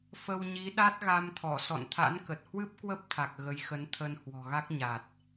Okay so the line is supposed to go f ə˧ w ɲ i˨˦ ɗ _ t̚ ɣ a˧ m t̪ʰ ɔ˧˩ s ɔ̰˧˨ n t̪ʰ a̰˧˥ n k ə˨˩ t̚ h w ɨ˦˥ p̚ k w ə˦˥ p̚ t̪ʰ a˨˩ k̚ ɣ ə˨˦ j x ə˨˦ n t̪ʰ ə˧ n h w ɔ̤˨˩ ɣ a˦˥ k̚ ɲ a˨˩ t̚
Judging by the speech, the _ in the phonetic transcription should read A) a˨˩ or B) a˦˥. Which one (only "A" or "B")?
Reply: B